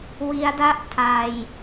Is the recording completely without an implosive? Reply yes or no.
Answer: yes